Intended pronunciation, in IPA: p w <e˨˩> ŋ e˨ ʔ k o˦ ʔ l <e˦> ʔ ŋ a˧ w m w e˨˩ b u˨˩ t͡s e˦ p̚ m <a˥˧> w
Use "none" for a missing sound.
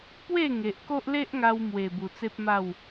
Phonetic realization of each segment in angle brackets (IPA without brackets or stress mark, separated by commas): e˥˧, e˦, a˥˧